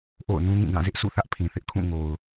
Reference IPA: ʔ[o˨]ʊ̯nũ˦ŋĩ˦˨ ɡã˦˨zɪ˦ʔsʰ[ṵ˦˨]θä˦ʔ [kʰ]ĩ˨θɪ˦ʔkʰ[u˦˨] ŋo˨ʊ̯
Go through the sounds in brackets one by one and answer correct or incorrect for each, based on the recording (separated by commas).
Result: incorrect, correct, incorrect, incorrect